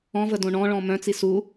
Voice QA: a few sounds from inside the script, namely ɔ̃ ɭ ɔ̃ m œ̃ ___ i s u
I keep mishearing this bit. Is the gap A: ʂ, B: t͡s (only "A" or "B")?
B